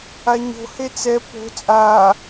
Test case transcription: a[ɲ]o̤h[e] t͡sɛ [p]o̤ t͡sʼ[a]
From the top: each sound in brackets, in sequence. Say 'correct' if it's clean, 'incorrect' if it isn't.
correct, correct, correct, incorrect: aː

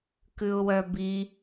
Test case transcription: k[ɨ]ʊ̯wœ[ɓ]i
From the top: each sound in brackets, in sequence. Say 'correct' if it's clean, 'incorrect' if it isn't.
incorrect: ʉ, incorrect: b

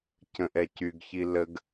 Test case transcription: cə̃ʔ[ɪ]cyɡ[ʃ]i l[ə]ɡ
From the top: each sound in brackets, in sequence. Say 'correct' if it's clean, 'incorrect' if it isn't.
incorrect: ɛ, incorrect: ç, correct

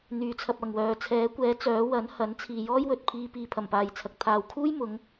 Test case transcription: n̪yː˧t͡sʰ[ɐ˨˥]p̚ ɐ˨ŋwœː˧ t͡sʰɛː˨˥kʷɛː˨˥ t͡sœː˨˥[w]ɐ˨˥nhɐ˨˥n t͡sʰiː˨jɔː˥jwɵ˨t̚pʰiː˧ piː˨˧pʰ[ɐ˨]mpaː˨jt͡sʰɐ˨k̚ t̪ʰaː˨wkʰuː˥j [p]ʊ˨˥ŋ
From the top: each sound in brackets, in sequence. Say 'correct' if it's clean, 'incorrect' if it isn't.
incorrect: ɐ˧, correct, incorrect: ɐ˨˩, incorrect: m

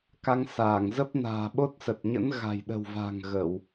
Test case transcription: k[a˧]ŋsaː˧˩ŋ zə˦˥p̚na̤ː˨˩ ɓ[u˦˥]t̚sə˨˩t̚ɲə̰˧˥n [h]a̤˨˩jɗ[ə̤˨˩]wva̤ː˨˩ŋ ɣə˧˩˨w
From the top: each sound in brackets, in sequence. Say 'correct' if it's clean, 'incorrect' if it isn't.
correct, incorrect: o˦˥, incorrect: ɣ, correct

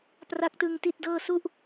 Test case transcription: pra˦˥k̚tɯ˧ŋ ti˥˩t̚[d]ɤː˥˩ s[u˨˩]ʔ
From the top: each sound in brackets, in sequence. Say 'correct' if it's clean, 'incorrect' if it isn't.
correct, incorrect: u˥˩

